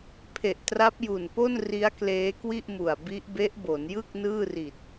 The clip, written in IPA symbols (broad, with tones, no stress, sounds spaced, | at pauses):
pʰ e˨˩ ʔ t r a˦˥ p̚ j u˨˩ n p o˥˩ n r i˦˥ a̯ k l eː˦˥ k w i˥˩ ʔ m u˨˩ a̯ b i˦˥ ʔ b e˦˥ ʔ b o˩˦ n j ɯ˥˩ k̚ n ɯː˥˩ r i˨˩ t̚